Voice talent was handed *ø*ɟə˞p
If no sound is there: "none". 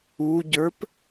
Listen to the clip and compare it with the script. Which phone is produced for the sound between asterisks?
u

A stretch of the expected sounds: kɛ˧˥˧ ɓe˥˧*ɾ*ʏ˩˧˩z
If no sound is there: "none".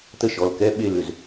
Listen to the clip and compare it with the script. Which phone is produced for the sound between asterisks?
l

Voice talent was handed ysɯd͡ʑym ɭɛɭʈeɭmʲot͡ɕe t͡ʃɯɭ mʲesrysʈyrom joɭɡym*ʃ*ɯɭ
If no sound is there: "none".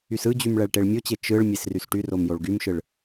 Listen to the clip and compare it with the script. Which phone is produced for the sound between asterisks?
ʃ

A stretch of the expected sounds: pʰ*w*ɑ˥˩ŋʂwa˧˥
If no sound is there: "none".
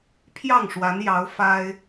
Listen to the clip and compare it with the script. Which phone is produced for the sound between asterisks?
j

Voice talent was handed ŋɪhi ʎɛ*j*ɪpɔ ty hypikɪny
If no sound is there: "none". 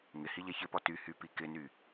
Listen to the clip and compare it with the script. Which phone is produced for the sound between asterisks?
ç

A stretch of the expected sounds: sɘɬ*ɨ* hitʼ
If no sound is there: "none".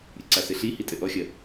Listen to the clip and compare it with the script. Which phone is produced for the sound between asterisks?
i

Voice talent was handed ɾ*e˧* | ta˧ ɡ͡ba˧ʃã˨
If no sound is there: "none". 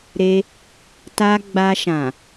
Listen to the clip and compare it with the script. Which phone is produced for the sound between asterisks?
e˧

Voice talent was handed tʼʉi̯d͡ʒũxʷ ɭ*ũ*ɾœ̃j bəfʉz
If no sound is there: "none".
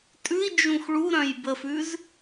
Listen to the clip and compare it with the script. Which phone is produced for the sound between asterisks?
u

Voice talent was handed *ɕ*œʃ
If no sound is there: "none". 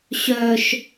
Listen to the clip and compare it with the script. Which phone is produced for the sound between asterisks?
ɕ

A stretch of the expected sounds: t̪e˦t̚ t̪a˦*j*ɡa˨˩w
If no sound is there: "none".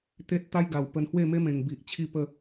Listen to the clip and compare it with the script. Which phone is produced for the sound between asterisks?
j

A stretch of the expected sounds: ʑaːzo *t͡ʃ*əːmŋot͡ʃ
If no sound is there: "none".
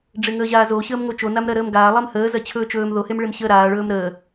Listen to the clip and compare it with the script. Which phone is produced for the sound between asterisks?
ɕ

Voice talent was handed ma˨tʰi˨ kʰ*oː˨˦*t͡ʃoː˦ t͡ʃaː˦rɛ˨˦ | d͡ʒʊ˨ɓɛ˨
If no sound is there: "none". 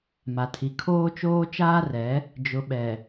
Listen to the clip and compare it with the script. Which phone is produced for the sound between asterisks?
oː˦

